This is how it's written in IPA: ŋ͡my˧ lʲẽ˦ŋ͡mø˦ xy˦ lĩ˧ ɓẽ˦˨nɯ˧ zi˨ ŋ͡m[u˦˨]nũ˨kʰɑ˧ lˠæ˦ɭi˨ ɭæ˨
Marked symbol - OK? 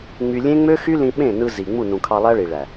yes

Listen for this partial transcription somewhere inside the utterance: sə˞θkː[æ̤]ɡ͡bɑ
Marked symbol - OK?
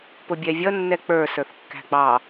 yes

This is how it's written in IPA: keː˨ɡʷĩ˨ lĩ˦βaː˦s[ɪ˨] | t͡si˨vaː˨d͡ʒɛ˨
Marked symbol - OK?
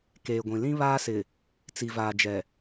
yes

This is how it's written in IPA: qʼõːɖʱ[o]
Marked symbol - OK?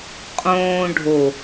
yes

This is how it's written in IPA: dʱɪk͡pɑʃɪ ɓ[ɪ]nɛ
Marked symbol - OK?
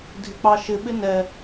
yes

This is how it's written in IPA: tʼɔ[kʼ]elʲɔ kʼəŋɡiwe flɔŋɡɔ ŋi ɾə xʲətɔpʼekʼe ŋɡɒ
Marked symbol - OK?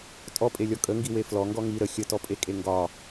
no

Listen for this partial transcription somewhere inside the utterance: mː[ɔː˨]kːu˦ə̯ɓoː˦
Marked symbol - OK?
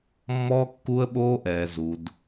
no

